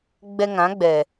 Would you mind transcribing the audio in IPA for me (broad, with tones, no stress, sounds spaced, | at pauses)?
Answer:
ɡ͡b ɛ˧ ŋ ã˨˦ ɡ͡b ɛ˨